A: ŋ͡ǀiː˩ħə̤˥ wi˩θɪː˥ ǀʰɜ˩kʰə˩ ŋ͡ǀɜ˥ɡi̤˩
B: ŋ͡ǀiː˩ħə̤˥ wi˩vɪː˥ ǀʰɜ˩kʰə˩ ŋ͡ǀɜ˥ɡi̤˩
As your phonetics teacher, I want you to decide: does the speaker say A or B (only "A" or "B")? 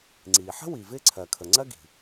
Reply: B